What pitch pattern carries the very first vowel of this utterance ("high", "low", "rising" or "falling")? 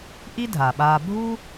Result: high